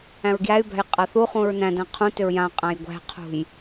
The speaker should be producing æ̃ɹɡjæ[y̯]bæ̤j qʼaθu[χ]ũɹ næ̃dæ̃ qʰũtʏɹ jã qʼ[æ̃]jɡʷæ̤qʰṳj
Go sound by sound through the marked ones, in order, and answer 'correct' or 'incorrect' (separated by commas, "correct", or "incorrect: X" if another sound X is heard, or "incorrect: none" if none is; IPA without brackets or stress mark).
correct, correct, correct